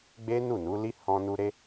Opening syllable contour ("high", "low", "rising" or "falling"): high